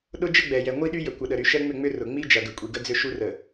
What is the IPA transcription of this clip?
ɗʊ˦d͡ʒə˦ɡ͡bɛ˨jɛ˨ ŋʷi˦ɗy˦jə˨ kʷə˨ɗə˨ɾy˨ʃɛ˦ ŋ͡mʏ˦˨ŋ͡mʏ˦ rʊ˨ŋ͡mi˦d͡ʒɐ˨ ɡə˨kʷʼi˨ ɡə˦d͡zʏ˦ʃu˦ rə˨

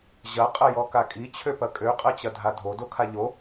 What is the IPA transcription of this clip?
ʑɐ qʼɐjɔkakʼi t͡ɕʰøpɐkʼø qʼɐt͡ɕɐdʱadʱo dokʰaʎo

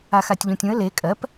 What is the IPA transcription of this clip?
axatʲʎũtʲũə̯ le kʼɜp

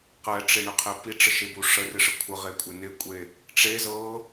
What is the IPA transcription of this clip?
qɛʈ͡ʂɪɳɪqʰɪ piʈ͡ʂəʃebu ʂərɪʂə kʷʰəʁekʷʼɪ nɪkʷʼe | ʈ͡ʂe zɤ

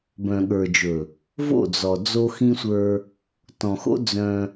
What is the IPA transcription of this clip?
bœ̃˨ɠə˞˨d͡ʒɵ˨ | vo̰˦˨d͡zɔ˨ d͡zo˦xĩ˦sʷə˞˦ | tɔ̃˨xo̰˦ d͡zœ̃˦

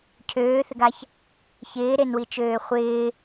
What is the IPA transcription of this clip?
cʰøːθɪɡaç | çɪːɾenwit͡ʃøː χʷɪː

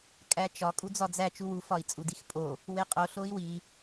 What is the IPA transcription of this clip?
kʼæt͡ʃɒ kʼud͡zɒd͡zæ t͡ʃuwu fɒi̯t͡sʼudixpʼo | weqʼo ɬoi̯wi

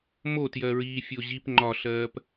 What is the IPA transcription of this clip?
motjɜɹiːfʲo ʑip ŋ͡ǃɒɬɜːp

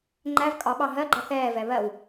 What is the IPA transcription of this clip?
ŋ͡ǃæv kʼɒɓɑ ɦɜɡ͡ǃʌ θɛːvɛ βɜw

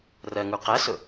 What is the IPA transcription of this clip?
rɜŋu qæsʊ

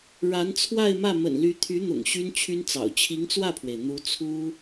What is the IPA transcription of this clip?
ɻa˧˥nt͡sʰwa˥˧ɪ̯mä˥˩ mə̰˨˩nly˧˥ t̪ʰy˧˥n̪ʊ̰˨˩ŋ ɕy˥nt͡ɕʰy˥nt͡sɑ̰˨˩ʊ̯ t͡ɕʰi˧˥ŋt͡swä˥˩pʰwe˩ɪ̯ n̪u˧˥t͡sʰu˥

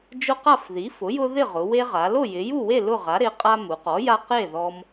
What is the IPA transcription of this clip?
d͡ʒʊ˦qa˥˨fði˩˥ fʊ˩˥jʊ˦ ðɪ˥˨ʁʊ˩˧we˦ʁa˩˧ lo˥˨jɪ˩˧ju˥˨we˥˨ lʊ˥˨ʁa˩˥ɾɪ˩˥ qʼa˦mu˩˧qɔ˩˥ja˦ qe˥˨ ðɔ˦m

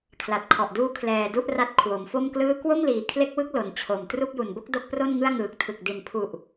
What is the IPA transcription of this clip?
kʰla˨˩t̚kʰɔ˨˩ʔduː˦˥ kʰlɛː˧du˥˩ʔra˦˥t̚ kʰwo˩˦mfo˥˩mklɯː˥˩ kwo˥˩mliː˩˦kʰle˦˥k̚wɯ˦˥k̚ lo˩˦nt͡ɕʰo˨˩mtru˥˩k̚ ju˨˩nbo˥˩k̚ do˥˩k̚pro˥˩nŋɯ˥˩a̯ ŋɯː˨˩k̚tʰɯ˨˩k̚ di˨˩npʰu˨˩ʔ

